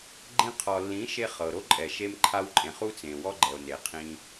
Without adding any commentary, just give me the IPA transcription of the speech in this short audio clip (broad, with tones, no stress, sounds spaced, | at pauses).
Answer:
ɡ͡ǃ ĩ˧ qʰ ɔ˨ lː ĩ˨˦ ʃ e˧ χ ɤ˨ ɾ o˦ ǃʼ ɛ˨ ʃ e˧ m ǃʰ a˧ w ǃʼ ẽ˨ χ u˦ t͡s ẽ˨ w ɔ˦ ɡ͡ǃ ɛ˨ o̯ n e˨ qʰ ĩ˧